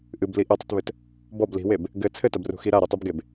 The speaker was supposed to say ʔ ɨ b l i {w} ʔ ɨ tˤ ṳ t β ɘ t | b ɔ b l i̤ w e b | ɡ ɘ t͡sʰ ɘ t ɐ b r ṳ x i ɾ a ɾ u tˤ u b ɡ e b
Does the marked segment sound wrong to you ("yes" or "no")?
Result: yes